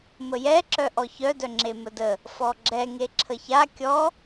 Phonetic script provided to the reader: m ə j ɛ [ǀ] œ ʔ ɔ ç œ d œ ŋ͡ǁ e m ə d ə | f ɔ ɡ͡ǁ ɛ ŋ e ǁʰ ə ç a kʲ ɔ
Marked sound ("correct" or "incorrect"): incorrect